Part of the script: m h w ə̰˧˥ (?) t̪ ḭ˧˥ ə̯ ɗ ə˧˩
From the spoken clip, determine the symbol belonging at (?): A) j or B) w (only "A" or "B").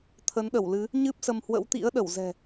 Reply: B